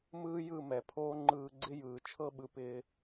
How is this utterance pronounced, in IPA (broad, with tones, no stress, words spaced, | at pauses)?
mɯː˦ jɯ˦˨ mɛ˨pʰoː˦ ŋ͡ǃɯː˧ɡ͡ǀɪ˦jɯː˨ t͡ʃʰɤ˦ɓɯ˨ pɪː˧